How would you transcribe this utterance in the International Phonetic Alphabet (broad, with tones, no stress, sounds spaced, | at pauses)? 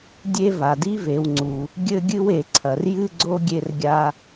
dʲ e˥ v a˩ d i˥ v e˨ w ŋ͡ǀ u˩ | ɡʲ ɘ˥ ɡʲ ɨ˥ w e˨ ǀʰ ɐ˩ r j ɨ˥ ɡ͡ǀ o˥ ɡʲ e˦ r ɡʲ a˦